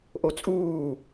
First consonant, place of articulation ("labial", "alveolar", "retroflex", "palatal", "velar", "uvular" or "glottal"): glottal